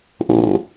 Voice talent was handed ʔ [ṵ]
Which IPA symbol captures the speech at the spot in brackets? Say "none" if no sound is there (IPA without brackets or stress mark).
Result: ṵ